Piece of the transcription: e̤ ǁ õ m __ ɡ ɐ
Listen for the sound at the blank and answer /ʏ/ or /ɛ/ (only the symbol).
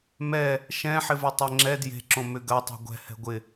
ʏ